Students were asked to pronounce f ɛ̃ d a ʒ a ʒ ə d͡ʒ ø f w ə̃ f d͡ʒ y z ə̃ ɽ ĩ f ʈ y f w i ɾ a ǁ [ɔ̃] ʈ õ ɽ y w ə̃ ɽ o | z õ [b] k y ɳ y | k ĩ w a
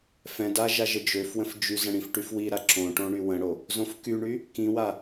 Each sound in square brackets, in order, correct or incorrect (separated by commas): incorrect, incorrect